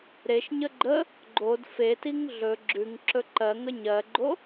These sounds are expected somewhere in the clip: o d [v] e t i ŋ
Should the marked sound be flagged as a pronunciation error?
yes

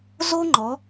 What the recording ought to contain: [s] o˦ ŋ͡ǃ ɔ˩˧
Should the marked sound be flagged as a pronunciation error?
yes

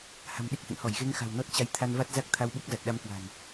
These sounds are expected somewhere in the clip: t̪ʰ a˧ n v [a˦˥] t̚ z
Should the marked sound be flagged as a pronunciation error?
no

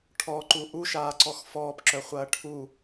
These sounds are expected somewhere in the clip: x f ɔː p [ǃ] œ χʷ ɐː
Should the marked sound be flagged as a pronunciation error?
yes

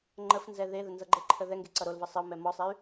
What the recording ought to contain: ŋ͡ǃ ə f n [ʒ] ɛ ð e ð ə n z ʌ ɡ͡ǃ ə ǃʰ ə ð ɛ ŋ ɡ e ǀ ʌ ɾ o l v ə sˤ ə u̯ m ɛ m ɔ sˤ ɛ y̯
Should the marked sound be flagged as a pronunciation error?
yes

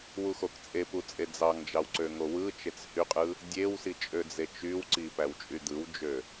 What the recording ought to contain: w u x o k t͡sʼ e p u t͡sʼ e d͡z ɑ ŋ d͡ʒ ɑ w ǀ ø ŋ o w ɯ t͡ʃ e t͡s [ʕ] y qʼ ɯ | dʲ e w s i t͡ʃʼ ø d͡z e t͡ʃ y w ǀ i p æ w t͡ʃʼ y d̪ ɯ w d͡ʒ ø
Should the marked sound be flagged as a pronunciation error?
yes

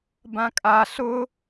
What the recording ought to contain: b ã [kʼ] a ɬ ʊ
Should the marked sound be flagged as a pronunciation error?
no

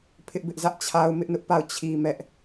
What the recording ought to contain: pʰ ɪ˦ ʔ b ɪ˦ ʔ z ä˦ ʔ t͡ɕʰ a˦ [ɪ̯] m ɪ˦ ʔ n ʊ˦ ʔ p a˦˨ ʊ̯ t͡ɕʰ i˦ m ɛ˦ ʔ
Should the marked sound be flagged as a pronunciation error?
yes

